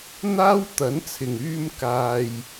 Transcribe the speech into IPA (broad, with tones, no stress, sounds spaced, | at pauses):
n̪ aː˥ w t̪ ɐ˨˥ n t͡sʰ ɪ˨˩ ŋ yː˧ m k aː˨ j